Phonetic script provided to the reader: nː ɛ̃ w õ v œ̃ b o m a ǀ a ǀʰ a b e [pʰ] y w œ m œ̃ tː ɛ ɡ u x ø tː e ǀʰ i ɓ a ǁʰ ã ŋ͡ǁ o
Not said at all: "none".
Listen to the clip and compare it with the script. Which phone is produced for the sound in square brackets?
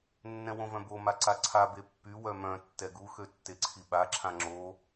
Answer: pː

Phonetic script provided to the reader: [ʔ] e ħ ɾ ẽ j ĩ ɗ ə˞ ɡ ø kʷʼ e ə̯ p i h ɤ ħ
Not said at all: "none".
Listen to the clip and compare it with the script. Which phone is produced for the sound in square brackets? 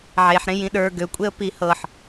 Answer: ʕ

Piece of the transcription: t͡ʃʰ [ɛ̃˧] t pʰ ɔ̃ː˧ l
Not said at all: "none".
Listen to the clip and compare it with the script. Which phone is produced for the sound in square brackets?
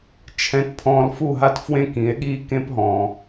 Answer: ɛ̃˧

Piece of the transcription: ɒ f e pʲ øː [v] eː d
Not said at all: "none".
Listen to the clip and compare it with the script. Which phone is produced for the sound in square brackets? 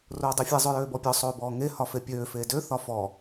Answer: f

